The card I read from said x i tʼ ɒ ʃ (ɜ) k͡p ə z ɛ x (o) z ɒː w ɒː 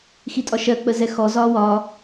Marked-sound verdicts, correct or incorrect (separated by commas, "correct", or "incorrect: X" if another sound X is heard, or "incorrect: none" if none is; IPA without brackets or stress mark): correct, incorrect: ɔ